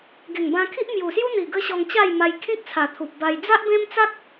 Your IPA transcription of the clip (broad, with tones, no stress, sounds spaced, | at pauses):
ɡ e˨˩ ŋ b ã˧ kʰ i˦ ʔ m j u˨˩ s j u˦ n̪ i˨˩ ɡ ə˦ ɕ ɔ˧ ŋ t͡ɕ a˥˧ j m a˧ j kʰ ĩ˦ k̚ t͡sʰ a˨˩ t̪ʰ u˨ p̚ b a˧ j d͡z a˦ ʔ b ẽ˦ m t͡s a˦ k̚